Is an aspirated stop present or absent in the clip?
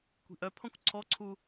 present